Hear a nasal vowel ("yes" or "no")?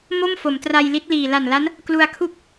no